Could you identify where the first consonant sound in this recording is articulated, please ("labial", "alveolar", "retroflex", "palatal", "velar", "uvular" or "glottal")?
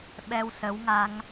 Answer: labial